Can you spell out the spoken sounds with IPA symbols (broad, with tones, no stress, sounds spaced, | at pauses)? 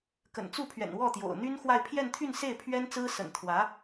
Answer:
k ə̰˨˩ n t͡s u˥˩ pʰ ɥ ɛ̰˨˩ n w ɔ˥˩ t̪ j o̰˨˩ ʊ̯ n̪ y˥ n x w a˥˧ ɪ̯ pʰ j ɛ˥˧ n t̪ʰ y˥˧ n s e˥˩ ɪ̯ pʰ ɥ ɛ˥ n t͡s ɹ̩˥ s ə̰˨˩ n t̪ʰ w ä˧˥